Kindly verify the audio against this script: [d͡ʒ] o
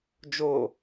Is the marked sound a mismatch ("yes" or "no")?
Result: no